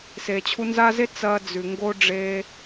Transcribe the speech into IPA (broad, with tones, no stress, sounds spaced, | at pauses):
s eː˨ t͡ɕʰ u˧ n z a˦ z e˦ t͡s ɐː˦ d͡z ʉ˨ ŋ ɡ o˦ ɖ͡ʐ eː˧